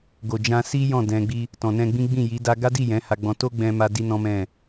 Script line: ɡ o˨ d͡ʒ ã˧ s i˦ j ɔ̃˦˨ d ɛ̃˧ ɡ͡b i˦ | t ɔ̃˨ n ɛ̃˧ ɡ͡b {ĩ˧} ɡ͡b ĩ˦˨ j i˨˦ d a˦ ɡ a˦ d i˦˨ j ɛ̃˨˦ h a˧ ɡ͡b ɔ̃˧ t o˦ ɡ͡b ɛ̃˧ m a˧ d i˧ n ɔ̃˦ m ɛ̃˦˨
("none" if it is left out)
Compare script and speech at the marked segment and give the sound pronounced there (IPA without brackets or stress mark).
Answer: ĩ˦